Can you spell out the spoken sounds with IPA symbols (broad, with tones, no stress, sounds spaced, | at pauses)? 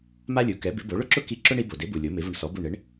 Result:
m a˥ lʲ u˩˥ k ɛ˩˥ b ɪ˩˥ b o˩˥ ɭ ʊ˥ ǁ ʊ˥ k i˥˩ ǁ ʊ˥ ɳ i˩˥ b o˩ d e˩˥ b u˩ lʲ o˩˥ m ɪ˩˥ v ʊ˧ ɳ s ɔ˩˥ b u˥˩ ɳ ɪ˩˥ ɳ